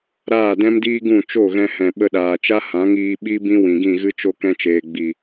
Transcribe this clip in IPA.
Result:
ɾ aː˦˨ d ɛ̃˦ m d iː˦ ɡ ũ˦˨ t͡ʃ o˦˨ ɣ ɛ̃˧ h ɛ̃˨ ɓ ə˧ ɗ aː˨ t͡ʃ a˦ h ã˨˦ ŋ iː˧ ɓ i˦ b ĩ˦ w ĩ˨ ɡ ĩ˦˨ ɣ ɨ˦ t͡ʃ o˦ k ɛ̃˧ t͡ʃ eː˨ ɡ͡b i˨

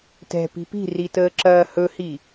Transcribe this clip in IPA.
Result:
t ɛ̤ p i̤ p i̤ r i t əː ǁ ɐː h ɵ h i

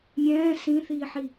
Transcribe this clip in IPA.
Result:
mʲ ɛ̃ː s ĩ θ iː ħ i

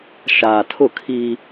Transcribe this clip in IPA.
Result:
ʃ aː˨ tʰ ʊ˦˨ kʰ iː˦

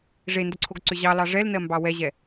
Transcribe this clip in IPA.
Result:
ʐ e n d ə ǀʰ o ɡ ǀ ʏ ʑ ɑ l ɑ ʐ ɛ l n ɜ m b ɑ w ɛ ʑ ɛ

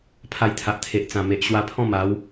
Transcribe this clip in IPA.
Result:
pʰ a˧ j t̪ʰ a˨ ʔ t̪ʰ e˨ ʔ t͡s ã˨˩ m e˨ ʔ ɕ w a˧ pʰ ɔ̃˥˧ m a˨˦ w

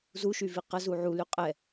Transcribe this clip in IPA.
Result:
z u ʃ y v i q ə z u ʕ u l y qʼ ɛ

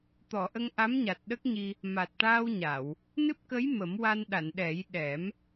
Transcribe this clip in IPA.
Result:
t̪ ɔ˨˩˨ ʔ ə˧ ŋ ʔ a˧˥ m ɲ a˨˩ t̚ ɗ ə˦˥ k̚ ɲ i˧ | m a˨˩ t̚ ʈ aː˧ w ɲ a˨˩˨ w | n ɨ˦˥ p̚ k ə˧˥ j m ə˨˩˦ m w a˧ n ɗ a˨˩˨ n ɗ ɛ˨˩˦ j ɗ ɛ˨˩˦ m

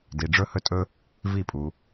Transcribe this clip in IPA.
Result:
d i˧ ɖ͡ʐ ɵ˦ h ɵ˦ tʼ ɵ˦ | v i˦˨ pʼ u˧

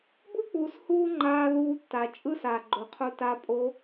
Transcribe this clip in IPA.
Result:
b ɯ˦ k͡p uː˨ s h uː˦ ŋ͡ǃ aː˧ ð uː˧ tː a˨ t͡ʃʼ ɯ˦ s aː˨ ɡ͡ǃ o˨ qʰ u˧ t a˧ pʼ o˧

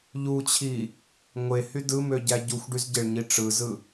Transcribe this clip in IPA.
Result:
ʎ u t͡ɕʰ i | ŋʷ e h y d ɯ m ø ɟ æ ɟ u xʷ ɖ y z ɟ e ɭ ɲ i ʈ͡ʂ ɯ z ɯ

